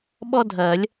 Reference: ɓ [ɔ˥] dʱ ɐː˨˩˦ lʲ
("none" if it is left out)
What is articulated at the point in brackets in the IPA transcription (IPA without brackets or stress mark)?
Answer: ɔ˥